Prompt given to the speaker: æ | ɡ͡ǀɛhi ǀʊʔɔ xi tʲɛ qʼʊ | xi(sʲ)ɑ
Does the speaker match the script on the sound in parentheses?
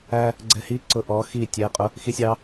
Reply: yes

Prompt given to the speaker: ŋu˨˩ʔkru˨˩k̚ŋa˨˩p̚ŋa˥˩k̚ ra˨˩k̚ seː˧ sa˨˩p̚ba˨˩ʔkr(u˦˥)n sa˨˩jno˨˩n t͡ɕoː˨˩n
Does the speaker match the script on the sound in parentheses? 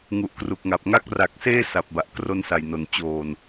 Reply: no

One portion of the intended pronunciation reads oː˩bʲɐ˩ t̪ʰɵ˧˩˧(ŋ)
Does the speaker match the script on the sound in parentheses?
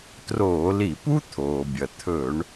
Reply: no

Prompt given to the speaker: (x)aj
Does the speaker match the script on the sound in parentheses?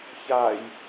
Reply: no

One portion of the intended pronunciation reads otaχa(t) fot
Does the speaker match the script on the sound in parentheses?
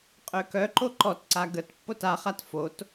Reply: yes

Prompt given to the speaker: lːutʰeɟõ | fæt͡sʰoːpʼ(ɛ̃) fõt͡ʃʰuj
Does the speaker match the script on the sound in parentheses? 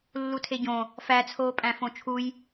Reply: no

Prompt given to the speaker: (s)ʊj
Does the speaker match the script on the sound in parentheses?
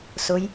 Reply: yes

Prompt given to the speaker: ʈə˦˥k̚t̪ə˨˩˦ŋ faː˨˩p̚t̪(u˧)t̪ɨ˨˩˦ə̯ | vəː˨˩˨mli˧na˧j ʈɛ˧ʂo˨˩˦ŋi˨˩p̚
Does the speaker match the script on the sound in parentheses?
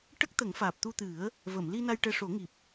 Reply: yes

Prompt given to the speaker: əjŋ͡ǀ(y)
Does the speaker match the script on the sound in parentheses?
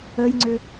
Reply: no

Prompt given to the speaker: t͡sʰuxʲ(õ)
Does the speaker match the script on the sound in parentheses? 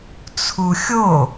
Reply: no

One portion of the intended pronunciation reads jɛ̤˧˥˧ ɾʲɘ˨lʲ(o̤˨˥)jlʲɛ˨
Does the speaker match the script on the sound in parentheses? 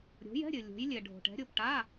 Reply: yes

